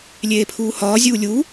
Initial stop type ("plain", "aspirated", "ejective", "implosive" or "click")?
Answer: aspirated